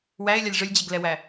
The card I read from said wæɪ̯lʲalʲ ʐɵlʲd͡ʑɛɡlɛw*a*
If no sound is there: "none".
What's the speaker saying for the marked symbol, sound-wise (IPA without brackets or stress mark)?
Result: æ